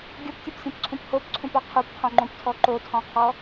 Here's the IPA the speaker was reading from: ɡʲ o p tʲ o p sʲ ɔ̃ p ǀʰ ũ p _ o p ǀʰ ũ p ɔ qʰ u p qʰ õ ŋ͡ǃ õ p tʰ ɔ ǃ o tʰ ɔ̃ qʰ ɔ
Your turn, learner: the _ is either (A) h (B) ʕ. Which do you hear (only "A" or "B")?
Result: A